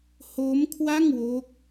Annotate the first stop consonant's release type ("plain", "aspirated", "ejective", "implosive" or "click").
aspirated